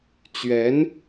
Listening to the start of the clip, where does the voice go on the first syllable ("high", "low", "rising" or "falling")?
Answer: rising